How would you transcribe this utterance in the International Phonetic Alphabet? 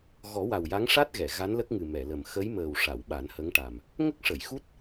ɣ ɔ˨˩˦ w a˨˩ w j a˧˥ ŋ ʂ a˦˥ t̚ ɣ ɛ˨˩˨ ɣ a˧˥ n l ə˦˥ k̚ ŋ ɨ˨˩ m ɛ˨˩˨ l ə˨˩ m x ə˧˥ j m əː˨˩ w ʂ a˨˩˨ w ɓ a˨˩˦ n h ə˧˥ ŋ ʈ a˨˩ m | ŋ ə˦˥ k̚ ʂ ə˨˩˨ j x u˦˥ t̚

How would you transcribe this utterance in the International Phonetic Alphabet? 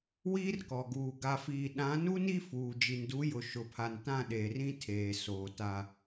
w iː˦ r k ɔ˨ ɡ uː˨ ɡ a˨ f iː˨ ɗ ã˨˦ n u˦ n i˦ f uː˨ d͡ʒ i˨ n d u˨˦ j ʊ˨ ʃ ʊ˨ pʰ a˨ n t ã˦˨ ɗ eː˨ r ĩ˦ tʰ eː˨ s oː˨ t a˨

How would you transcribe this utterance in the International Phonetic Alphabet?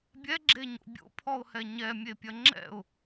bʲ ɛ ɡ͡ǁ e ɲ o̰ bʲ o̰ pʰ ɔ ʊ̯ h ɛ ɲ ɛ mʲ e pʲ ɐ ŋ͡ǁ ɛ̰ ʊ̯

